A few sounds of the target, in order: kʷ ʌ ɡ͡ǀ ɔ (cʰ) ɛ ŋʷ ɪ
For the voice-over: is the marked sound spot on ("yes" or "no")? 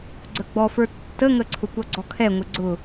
no